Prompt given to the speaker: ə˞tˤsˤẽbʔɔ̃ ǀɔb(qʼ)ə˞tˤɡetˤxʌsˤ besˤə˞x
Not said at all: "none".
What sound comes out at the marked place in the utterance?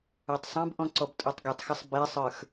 tʼ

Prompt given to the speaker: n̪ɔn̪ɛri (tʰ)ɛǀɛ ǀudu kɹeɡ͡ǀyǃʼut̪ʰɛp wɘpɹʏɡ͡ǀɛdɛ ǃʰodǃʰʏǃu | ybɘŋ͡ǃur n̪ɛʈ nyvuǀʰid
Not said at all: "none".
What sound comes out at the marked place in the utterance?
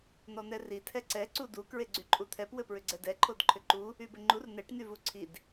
tʰ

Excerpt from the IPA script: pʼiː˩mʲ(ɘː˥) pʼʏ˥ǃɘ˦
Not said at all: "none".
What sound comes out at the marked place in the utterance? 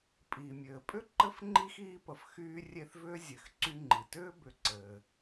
ɘː˩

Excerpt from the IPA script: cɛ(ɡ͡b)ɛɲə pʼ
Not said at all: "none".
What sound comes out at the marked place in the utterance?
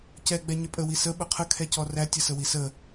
ɡ͡b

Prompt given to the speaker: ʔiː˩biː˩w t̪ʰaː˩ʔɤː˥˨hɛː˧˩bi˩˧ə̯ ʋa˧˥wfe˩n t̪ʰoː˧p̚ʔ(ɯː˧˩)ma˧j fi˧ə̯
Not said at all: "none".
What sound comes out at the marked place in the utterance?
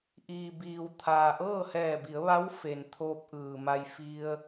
ɯː˩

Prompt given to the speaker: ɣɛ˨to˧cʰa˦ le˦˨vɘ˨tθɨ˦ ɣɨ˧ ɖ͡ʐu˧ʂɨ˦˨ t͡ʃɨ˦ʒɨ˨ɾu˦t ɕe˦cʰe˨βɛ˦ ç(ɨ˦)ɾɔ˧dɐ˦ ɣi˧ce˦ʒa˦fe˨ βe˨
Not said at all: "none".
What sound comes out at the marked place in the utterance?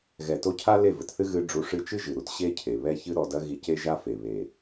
ɨ˦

